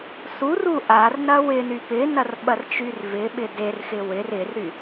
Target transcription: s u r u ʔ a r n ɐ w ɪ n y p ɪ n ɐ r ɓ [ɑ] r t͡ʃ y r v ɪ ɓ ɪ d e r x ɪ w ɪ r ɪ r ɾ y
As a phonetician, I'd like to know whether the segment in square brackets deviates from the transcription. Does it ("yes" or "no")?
yes